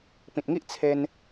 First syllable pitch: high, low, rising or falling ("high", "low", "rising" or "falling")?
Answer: low